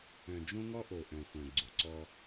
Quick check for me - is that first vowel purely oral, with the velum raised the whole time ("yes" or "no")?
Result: no